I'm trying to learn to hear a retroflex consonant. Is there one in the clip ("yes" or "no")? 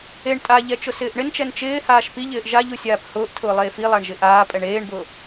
yes